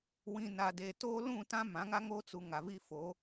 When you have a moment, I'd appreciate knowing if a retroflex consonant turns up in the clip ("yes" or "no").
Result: no